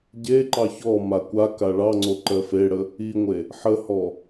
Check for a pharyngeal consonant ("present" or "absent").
present